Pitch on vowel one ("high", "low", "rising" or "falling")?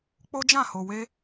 high